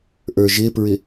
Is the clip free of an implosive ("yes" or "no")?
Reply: yes